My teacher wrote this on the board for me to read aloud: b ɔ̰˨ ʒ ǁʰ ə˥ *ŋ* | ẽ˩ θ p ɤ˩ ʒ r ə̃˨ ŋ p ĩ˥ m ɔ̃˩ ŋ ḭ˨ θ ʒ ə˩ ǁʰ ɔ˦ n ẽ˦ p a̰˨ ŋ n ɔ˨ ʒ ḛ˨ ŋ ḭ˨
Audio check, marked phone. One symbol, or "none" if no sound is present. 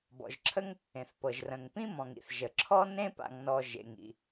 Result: ŋ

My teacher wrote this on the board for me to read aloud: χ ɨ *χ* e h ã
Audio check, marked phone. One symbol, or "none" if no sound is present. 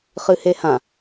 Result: h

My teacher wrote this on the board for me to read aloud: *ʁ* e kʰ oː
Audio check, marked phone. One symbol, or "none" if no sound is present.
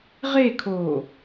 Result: ʁ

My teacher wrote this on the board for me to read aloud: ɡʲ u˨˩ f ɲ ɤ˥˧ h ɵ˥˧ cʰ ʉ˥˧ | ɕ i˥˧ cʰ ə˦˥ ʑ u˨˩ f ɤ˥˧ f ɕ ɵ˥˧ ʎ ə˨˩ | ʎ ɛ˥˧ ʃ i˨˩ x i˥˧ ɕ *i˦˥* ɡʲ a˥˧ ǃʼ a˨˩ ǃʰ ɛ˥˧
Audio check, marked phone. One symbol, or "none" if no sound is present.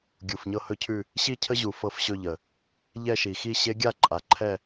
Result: e˦˥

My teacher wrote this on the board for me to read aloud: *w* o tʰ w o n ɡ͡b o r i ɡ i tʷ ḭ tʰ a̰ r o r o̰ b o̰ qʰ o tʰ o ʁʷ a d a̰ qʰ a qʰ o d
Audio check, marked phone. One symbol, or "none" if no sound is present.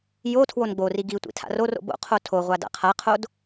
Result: j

